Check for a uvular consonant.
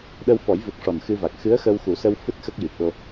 absent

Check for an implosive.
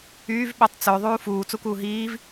present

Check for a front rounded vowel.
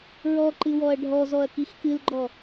absent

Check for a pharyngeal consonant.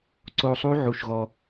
present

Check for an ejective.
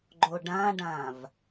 absent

